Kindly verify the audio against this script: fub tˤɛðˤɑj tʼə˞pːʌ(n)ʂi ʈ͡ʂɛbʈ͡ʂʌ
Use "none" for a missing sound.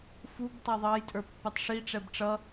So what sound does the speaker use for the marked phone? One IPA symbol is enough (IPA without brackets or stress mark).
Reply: tˤ